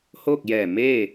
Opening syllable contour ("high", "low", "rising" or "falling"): falling